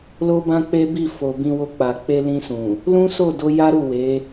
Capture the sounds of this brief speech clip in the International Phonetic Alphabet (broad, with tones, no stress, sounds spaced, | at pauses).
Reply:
l o˧ b ã˧ k͡p e˦ b i˦˨ f o˨ b ĩ˧ w o˧ k͡p a˨ k͡p e˧ l ĩ˧ s ũ˨ | l ũ˦ s o˦˨ d o˧ j a˦ ɾ u˦˨ w e˨˦